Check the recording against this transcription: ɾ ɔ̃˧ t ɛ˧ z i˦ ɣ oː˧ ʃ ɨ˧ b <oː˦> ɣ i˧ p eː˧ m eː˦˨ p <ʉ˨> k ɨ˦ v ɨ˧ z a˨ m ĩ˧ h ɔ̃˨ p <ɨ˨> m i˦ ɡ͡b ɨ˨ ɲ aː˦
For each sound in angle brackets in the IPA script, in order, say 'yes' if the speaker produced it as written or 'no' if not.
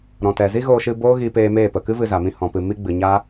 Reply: yes, no, yes

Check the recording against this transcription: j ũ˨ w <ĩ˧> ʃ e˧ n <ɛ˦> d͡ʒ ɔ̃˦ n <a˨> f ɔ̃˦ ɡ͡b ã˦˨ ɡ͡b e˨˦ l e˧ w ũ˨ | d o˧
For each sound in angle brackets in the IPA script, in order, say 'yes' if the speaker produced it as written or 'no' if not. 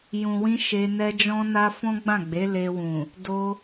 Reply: yes, yes, no

